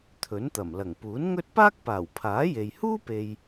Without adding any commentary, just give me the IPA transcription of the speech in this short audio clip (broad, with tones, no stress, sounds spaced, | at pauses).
t̪ʰ ɵ˨˥ n t̪ ɐ˨˩ m l ɐ˨˩ ŋ p uː˨˥ n ŋ ɵ˥ t̚ p aː˥ k̚ p aː˨˩ w pʰ aː˨˥ j e˨ j h uː˥ p e˨ j